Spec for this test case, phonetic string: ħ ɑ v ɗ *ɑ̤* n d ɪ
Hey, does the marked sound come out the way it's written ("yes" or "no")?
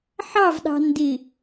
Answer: yes